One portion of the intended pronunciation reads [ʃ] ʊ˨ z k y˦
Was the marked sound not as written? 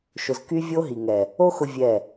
no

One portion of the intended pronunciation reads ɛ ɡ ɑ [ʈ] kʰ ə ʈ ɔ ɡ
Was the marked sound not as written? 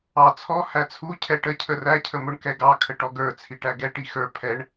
yes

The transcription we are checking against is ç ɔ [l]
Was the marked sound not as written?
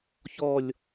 yes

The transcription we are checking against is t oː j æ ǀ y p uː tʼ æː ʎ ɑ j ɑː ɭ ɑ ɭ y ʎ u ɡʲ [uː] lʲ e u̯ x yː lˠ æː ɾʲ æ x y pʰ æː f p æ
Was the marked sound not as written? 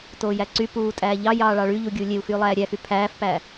no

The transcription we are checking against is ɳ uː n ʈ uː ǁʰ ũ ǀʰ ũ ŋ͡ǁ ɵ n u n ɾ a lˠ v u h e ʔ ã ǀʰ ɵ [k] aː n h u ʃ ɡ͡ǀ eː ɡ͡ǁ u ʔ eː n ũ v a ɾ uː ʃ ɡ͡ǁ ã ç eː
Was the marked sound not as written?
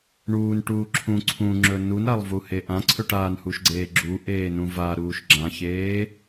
yes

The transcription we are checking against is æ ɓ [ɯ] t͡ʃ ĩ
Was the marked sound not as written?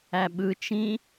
no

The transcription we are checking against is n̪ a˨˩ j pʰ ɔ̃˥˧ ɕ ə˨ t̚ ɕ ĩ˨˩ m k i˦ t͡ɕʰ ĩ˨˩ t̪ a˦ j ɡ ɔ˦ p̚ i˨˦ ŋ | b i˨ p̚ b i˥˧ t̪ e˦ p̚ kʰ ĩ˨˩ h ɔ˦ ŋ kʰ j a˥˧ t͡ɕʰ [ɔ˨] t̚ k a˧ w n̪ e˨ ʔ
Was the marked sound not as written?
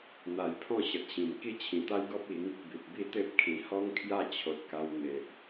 yes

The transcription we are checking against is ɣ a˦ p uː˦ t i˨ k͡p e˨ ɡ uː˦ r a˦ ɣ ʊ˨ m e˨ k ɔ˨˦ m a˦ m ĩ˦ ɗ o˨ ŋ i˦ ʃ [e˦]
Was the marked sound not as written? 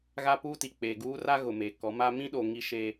no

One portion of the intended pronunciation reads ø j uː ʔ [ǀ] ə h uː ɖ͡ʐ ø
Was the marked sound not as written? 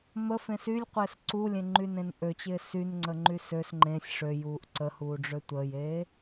no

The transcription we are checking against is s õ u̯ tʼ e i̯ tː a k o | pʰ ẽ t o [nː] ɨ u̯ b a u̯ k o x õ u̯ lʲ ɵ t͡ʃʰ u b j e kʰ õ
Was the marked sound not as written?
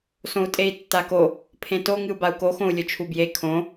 yes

